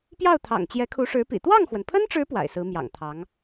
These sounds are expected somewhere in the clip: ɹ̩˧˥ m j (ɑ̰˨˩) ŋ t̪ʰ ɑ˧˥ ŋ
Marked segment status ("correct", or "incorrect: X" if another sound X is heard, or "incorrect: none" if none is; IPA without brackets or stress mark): correct